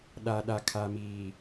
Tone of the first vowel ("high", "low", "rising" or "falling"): low